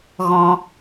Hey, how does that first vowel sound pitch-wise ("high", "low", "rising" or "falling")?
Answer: high